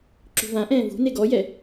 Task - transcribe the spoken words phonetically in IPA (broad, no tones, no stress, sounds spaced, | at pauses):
ǁ ṳ v ã ʔ ɛ̃ː v ṳ n e ɡ ɔ j ɛ